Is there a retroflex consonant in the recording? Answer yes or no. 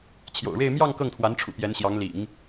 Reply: yes